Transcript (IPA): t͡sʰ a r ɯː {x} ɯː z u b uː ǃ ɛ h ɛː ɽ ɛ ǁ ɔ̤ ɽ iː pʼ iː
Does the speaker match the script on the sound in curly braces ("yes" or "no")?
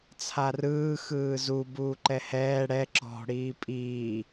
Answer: yes